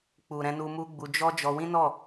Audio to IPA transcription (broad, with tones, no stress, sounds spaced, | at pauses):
k͡p u˨ ɾ ɛ̃˧ n u˧ m u˦ ɡ͡b u˧ d͡ʒ ɔ˦ d͡ʒ ɔ˧ w ĩ˦ n ɔ˦˨